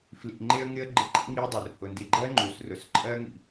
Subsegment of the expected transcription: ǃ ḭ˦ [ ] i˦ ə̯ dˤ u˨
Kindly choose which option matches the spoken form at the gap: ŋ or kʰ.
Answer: ŋ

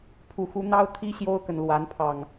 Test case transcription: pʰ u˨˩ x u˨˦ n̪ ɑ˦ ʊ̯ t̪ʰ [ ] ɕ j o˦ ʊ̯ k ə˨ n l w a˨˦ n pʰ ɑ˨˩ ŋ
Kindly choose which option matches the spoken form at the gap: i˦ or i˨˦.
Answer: i˦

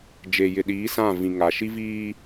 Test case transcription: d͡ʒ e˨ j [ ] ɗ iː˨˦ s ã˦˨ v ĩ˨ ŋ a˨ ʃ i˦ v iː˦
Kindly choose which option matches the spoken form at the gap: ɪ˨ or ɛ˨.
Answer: ɪ˨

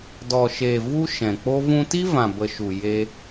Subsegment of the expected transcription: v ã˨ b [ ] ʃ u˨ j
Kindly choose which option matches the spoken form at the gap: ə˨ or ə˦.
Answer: ə˨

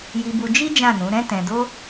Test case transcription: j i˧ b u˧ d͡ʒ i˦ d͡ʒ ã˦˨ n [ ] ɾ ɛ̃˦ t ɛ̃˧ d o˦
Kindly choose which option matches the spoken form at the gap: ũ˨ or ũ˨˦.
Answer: ũ˨˦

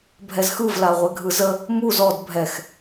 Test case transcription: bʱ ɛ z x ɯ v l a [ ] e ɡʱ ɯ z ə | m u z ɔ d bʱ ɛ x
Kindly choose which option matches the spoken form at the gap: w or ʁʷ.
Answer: ʁʷ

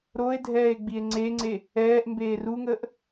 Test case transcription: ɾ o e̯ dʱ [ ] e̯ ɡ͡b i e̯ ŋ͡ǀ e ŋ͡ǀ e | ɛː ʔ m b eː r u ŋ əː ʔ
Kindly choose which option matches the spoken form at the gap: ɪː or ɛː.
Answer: ɛː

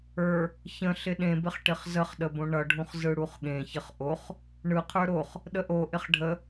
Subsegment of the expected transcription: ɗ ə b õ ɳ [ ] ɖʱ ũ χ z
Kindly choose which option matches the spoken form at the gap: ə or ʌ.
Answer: ʌ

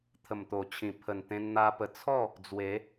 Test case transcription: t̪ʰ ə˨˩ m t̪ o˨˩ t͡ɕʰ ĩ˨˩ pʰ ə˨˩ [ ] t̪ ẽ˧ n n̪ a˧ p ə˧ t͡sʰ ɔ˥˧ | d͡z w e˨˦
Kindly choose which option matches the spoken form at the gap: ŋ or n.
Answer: n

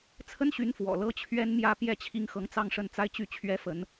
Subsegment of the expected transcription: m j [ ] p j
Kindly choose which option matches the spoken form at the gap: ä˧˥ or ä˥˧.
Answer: ä˥˧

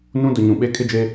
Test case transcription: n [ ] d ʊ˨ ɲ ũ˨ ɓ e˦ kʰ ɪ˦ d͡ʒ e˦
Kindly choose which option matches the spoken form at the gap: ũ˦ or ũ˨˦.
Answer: ũ˦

